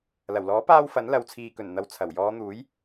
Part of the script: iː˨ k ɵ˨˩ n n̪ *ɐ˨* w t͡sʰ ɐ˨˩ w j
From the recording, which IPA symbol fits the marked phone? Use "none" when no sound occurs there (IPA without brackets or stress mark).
ɐ˨